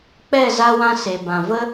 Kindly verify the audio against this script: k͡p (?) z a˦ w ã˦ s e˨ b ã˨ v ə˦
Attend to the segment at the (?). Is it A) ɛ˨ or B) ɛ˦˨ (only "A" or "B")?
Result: B